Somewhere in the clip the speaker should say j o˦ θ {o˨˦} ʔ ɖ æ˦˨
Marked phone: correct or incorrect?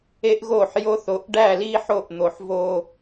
correct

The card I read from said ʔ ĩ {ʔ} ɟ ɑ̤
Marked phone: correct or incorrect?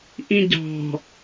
incorrect: none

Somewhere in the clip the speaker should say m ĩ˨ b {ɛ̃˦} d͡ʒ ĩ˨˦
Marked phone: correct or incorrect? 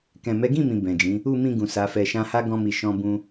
incorrect: ɛ̃˨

